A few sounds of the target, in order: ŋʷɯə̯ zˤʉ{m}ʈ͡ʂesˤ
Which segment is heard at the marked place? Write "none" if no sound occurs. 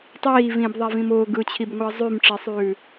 m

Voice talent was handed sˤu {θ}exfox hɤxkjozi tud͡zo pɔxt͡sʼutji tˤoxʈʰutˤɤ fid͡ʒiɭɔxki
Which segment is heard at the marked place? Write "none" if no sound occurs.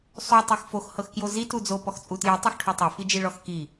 tˤ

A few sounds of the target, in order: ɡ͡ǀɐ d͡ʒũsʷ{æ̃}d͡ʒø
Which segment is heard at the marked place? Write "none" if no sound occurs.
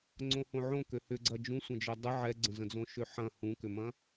ɐ̃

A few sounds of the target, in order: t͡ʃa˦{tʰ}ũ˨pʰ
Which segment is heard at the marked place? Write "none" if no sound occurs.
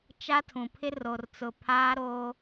tʰ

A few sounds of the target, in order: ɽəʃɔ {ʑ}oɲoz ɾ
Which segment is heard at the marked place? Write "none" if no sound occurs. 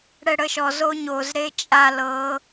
z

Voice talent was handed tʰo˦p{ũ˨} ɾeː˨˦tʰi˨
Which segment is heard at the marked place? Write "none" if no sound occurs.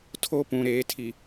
ũ˨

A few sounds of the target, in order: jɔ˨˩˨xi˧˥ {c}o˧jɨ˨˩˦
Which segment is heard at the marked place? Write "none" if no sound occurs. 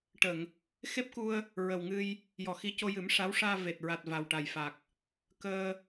c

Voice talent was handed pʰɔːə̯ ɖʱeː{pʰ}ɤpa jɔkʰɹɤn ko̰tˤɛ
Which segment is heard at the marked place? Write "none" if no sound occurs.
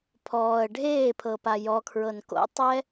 pʰ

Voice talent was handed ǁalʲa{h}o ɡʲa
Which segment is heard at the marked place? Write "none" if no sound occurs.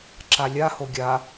h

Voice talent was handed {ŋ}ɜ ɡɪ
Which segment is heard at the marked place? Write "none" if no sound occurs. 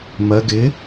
m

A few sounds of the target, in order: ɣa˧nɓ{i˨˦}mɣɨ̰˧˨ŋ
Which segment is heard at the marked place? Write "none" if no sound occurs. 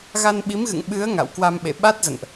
i˨˦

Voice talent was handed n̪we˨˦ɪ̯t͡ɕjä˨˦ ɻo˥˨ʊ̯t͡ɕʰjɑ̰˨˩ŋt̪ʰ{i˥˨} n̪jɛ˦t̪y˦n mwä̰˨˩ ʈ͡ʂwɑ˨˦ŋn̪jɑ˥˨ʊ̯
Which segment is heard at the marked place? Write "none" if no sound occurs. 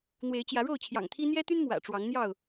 i˦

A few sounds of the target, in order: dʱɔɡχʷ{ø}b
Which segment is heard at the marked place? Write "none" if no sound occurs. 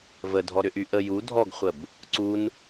ə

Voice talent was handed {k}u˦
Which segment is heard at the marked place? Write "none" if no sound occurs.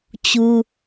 t͡ɕ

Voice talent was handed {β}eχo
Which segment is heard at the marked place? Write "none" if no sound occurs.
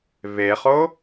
β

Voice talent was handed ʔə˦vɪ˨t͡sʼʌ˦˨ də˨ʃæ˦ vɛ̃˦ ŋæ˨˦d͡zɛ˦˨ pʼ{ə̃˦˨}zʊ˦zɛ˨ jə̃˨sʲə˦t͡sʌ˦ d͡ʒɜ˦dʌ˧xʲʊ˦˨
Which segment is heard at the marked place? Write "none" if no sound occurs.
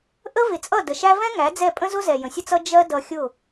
ə̃˦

